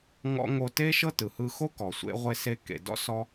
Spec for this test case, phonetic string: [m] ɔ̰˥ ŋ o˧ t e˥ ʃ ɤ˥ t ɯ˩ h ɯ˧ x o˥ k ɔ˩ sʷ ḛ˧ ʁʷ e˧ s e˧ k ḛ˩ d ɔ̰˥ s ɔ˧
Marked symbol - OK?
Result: no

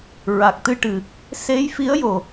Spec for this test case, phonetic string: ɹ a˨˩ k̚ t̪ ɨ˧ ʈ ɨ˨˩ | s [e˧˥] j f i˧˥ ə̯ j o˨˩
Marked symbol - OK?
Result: yes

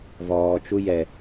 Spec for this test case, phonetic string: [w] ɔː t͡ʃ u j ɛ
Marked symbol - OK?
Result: no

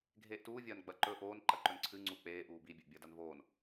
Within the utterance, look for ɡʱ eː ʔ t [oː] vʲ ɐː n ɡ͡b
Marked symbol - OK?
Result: no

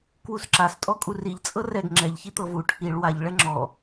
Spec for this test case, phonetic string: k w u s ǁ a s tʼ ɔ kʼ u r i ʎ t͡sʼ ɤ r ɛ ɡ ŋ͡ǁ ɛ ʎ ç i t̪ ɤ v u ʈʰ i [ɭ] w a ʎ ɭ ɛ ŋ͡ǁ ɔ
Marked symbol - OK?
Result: yes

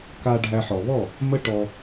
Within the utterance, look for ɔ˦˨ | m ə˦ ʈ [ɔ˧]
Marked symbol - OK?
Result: yes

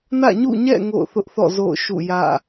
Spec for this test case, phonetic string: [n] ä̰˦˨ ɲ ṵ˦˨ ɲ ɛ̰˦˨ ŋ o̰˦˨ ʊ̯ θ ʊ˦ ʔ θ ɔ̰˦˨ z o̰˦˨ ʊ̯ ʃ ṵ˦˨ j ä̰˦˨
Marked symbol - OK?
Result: yes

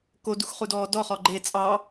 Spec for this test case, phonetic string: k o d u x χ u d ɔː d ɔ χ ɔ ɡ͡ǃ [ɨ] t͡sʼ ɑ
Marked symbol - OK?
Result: no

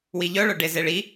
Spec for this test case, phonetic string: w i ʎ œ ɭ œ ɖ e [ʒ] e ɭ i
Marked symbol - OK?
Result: no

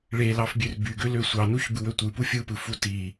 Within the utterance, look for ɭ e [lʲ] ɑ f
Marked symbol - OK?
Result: no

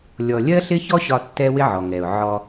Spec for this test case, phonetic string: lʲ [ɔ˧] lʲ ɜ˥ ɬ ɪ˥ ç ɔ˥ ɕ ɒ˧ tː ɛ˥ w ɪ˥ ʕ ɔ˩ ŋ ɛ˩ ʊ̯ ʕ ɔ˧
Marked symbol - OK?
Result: yes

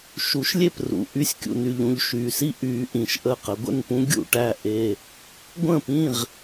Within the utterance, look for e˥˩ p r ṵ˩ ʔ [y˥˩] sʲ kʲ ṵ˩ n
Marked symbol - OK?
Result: yes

